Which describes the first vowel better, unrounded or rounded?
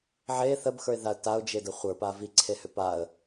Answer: unrounded